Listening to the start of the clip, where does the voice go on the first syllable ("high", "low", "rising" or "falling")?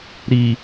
low